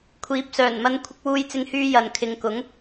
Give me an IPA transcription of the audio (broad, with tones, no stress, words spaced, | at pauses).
kʷʰiː˨˥p̚sœː˨˩nmɐ˧n kʷʰɪ˧k̚wuː˧jt͡sɪ˧ŋhyː˧ jɐ˨n kʰɪ˨˧ŋkʊ˨˥ŋ